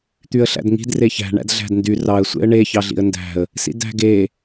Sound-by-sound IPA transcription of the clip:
t̪ y ə̯ ɬ æ̰ d ŋ i̤ d r e ç æ̤ ɳ æ̰ d ɮ æ̤ d n d y r ɑ ə̯ sʷ ḛ ə̯ ɳ e ç ɑ ɮ ḭ ə̯ n d æ̤ ə̯ | s ḭ d æ̤ ɡ e

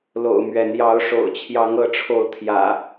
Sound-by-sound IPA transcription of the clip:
l o̰˨˩ ʊ̯ m ɥ ɛ˨˦ n j ɑ˨˦ ʊ̯ ʂ o̰˨˩ ʊ̯ t͡ɕʰ j ɑ˨˦ ŋ ɤ˨˦ ʈ͡ʂʰ o˨˦ ʊ̯ t̪ʰ j ä̰˨˩

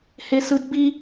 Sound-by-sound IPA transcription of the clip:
h e s ɯ d b i

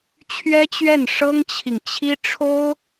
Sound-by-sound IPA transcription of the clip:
t͡ɕʰ ɥ ɛ˥ t͡ɕ ɥ ɛ˥˩ n ʂ ɤ˥ ŋ t͡ɕʰ i˨ ŋ t͡ɕʰ i˥ ʈ͡ʂʰ o˥ ʊ̯

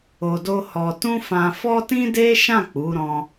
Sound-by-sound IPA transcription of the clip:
o˧ d o˦ h ɔ˧ t ũ˦ f ã˧ f ɔ˦ t ĩ˦ d e˦ ʃ ã˦˨ k͡p u˨˦ ɾ ɔ̃˧

